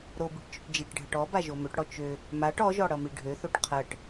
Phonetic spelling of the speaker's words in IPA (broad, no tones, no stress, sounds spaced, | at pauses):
ɾ o b i ʈ t͡ʃ ø ʈ d͡ʒ i ʈ ɖʱ ʌ ʈ ɔ b a ʒ o m ø ʈ ɽ ɔ t͡ʃ ø | m a ʈ ɔ ʒ ɔ ɽ ʌ m i ɖʱ ø θ o ʈ qʰ ɜ ʈ